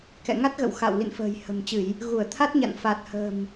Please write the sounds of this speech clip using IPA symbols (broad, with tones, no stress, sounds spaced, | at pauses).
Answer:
k ɛ̰˧˨ ŋ a˦˥ t̚ ɣ ə̰˧˨ w x a̰˧˨ w l ḭ˧˨ n f ə̤ː˨˩ j h ə̤˨˩ m t͡ɕ ɨ˧˩˨ j | ɣ u˧˩ ə̯ t̪ʰ a˦˥ t̚ ɲ a̰˧˨ n f a˨˩ t̚ h ə̤˨˩ m